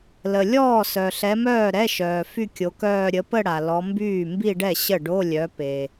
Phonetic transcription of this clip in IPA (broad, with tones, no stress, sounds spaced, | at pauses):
l ə˩ lʲ ɔː˥˩ s œ˩ ɬ ɛ˨˦ m œː˥˩ ɾ ɛ˧˥˧ ʃ œː˩ f y˥˧ kʲ o˨˦ k œː˥˧ ɾʲ ə˨˦ p ə˥˧ ɽ a˩ l ɔ˨˦ m b yː˥˩ m b i˥˧ ɖ ɛ˥˩ ɕ ə˥˩ ɖ o˧˥˧ lʲ œ˨˦ p e˩